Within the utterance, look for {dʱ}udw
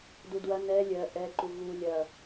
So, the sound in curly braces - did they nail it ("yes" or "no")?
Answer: no